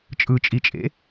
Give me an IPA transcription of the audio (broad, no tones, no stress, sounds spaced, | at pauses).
t͡ʃʼ ɯ t͡ʃʼ i t͡ʃʼ ḛ